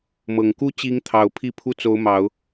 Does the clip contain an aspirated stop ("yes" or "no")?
yes